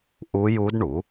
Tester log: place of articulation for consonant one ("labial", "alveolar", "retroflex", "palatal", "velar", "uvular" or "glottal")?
glottal